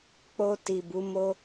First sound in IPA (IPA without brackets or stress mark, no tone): k͡p